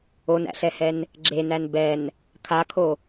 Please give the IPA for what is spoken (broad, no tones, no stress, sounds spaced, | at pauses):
o n æ̰ ɬ ɛ h ɛ n | ɡ͡ǁ e n æ n b ɛ n | kʰ a kʰ o